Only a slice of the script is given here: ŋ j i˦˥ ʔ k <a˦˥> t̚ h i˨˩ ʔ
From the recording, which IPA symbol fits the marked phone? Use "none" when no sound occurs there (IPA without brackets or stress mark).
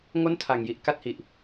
a˥˩